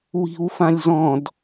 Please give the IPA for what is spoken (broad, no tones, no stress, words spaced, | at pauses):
wi̤wfãlʲzɔ̃d